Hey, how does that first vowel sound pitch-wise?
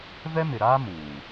high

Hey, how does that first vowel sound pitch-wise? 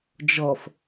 low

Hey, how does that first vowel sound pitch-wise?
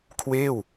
falling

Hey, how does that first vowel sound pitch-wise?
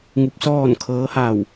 rising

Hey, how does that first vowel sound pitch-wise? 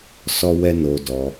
high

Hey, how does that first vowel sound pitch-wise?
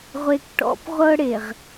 high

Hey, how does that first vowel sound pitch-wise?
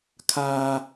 high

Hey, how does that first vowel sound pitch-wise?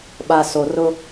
low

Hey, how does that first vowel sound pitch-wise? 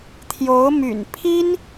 rising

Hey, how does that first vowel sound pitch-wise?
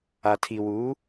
low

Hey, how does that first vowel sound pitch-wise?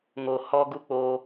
low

